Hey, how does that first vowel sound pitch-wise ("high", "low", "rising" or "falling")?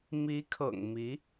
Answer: rising